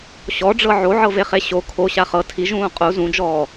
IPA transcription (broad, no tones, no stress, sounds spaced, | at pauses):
ɕ ɔ ɖ͡ʐ ɤ ʕ o ʕ ɤ v e χ e ɕ o kʰ o ɕ a χ ɤ tʰ i ʒ ũː qʼ u z ũ d͡ʒ ɔː